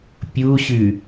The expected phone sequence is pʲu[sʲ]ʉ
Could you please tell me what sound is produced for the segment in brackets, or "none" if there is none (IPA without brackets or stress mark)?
ɕ